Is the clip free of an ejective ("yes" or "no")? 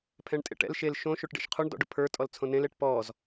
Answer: no